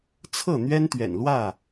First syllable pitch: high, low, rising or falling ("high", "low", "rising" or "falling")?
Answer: falling